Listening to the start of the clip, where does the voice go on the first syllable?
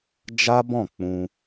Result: high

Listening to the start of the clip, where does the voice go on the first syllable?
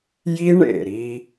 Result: high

